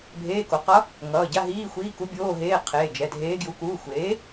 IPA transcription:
bʱ eː˧˥˧ k o˩˥ q ʌ˧˥ | ŋ ʌː˩˧˩ ɟ a˧˥˧ ɦ iː˧˥˧ xʷ iː˧˥˧ k u˧˥ bʲ oː˧˥˧ ɦ eː˧˥˧ qʰ eː˩˧˩ d͡ʒ ɛ˩˧˩ dʱ eː˧˥ ɡ j u˩˥ k uː˩˧˩ xʷ eː˩˥

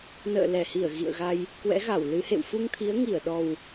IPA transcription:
n ə̰ː˧˨ l ɛ˧˩ h i˧˩ ə̯ ɣ ḭ˧˨ ə̯ ɣ a˧ j | k w ɛ̰˧˥ ɣ a˧˩ w l ɨ˨˦ h ḛ˧˨ w f u˧ ŋ t̪ʰ i˨˦ ə̯ ŋ i˧˩ ə̯ ɗ ɔ˨˩ w

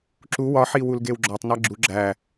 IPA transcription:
ǁ u w ɒ ħ i w u l ɡ e w ɡ͡ǁ ɒ tˤ n æ ɡ͡ǁ u ɡ͡ǁ æ

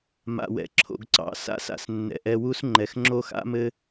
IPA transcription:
m a̰˨ w ɛ̰˨ ǁʰ o̰˨ ɡ ǀ ɑ̰˨ s a̰˧ s a̰˨ s nː ɛ̰˨ ʔ ɛ˧ w u˦ s ŋ͡ǃ ɛ˨ x ŋ͡ǁ o˦ x a̰˦ m ɘ˦

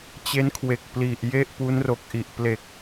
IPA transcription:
t͡ɕ e˦˥ n kʰ w e˨˩ k̚ p l i˨˩ ʔ j e˥˩ ʔ p u˦˥ n r o˨˩ k̚ ʔ i˨˩ ʔ p l e˨˩ k̚

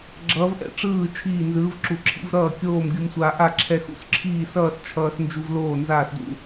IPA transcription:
ɡ͡ǁ ʌː˧˥ v ʔ ɛ̰˧˥ ʈ͡ʂ ɯː˥˨ t͡ʃʰ iː˥˨ n z ɯː˧˥ v ǁ u˧ ǁʰ ḭ˧˥ v ɾ ʌː˥˨ kʲ oː˥˨ m ɡʲ u˧ m sʷ aː˧ ʔ a˥˨ ǁʰ ɛ˧ x ṵ˧ s ǁʰ iː˥˨ s ʌː˥˨ s t͡ʃʰ ʌː˧ s n d͡ʒ u˧ v l oː˥˨ n z aː˥˨ s d ṵ˥˨

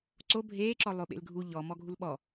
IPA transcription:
ǀ o bʱ eː ǁ ɔ lˠ o ɓ ḛ l ɡʱ u ʎ ɔ m ɔ ɡʱ u l ɓ ɔ

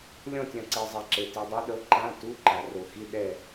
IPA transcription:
lʲ ɔ̃˦˨ tʲ ã˨ ǀ e˨ zˤ ɛ˨ ǁ e˨ t i˨ dˤ ɛ˦˥ ɗ ɤ˨˥ ǃ ã˧˥˧ t u˧˥˧ ǃ a˨ r o˨ x i˧˥˧ ɗ ɛ˦˨

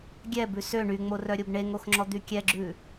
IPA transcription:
ɡʲ ɛ b ʉ s ø ɳ y ŋ͡m o r œ ɾʲ o b ɳ e ŋ o x ŋ͡ǁ ɔ d̪ y kʲ ɛ ɡ͡ǁ ʉ

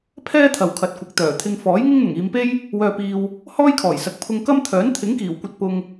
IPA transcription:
pʰ ɛː˥ t̪ʰ ɐ˨ w kʰ ɐ˨ t̚ kʷ ɪ˨ k̚ t̪ œː˨˩ t̪ʰ ɪ˧ ŋ f ɔː˨˥ j ŋ ɪ˥ ŋ n̪ ʊ˨˩ ŋ iː˨˧ m p e˥ j | w œː˧ p iː˧ w | h ɔː˥ j kʰ ɔː˨˩ j s ɐ˨ k̚ pʰ ʊ˧ ŋ k ɐ˥ m t̪ʰ œː˨˥ n t̪ʰ ɪ˨˥ ŋ k iː˨˩ w kʷ ɐ˧ t̚ p ʊ˧ ŋ

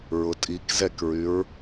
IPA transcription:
ɹ ʊ tʼ i k z ɛ k ɹ y ɹ

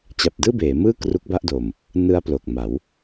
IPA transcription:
t͡ɕ a˨˩ p̚ d ɯː˥˩ b eː˩˦ m ɯː˥˩ k r u˦˥ k̚ b a˥˩ ʔ d o˨˩ m | n ɯ˦˥ a̯ p l o˨˩ k̚ m a˩˦ w

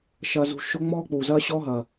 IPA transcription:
ʃ ɐː˧ z ṳ˧ ʃ o˦ ŋ͡m ɔː˦ k͡p uː˨ z ɐː˦ ɕ ɔː˦ ɦ ɐː˨

